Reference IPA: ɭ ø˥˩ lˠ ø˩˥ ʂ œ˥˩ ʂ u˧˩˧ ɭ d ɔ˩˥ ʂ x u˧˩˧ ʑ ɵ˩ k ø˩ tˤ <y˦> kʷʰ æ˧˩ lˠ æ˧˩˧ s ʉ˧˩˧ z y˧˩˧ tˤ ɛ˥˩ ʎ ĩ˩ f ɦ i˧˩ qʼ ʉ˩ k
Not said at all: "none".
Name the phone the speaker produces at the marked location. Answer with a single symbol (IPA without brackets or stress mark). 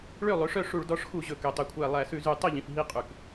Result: y˩